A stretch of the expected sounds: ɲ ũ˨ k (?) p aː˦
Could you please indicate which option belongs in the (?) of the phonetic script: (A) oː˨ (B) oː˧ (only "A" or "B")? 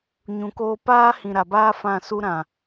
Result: B